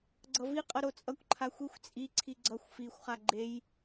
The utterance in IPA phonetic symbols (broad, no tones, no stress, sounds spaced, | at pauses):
ɡ͡ǀ ʌ v i qʼ ʌ ɾ o t͡sʼ ʌ kʷ ǃʰ a xʷ i xʷ t͡sʼ i ǀʰ i ɡ͡ǀ ʌ xʷ f i xʷ χ a ɡ͡ǃ e j